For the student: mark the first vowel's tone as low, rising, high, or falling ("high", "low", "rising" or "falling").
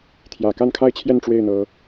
low